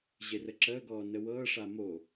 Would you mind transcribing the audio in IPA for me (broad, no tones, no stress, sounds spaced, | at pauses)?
ʑ e r ə ǁ əː ɡ ɔː n ə w ɤː ʂ a m o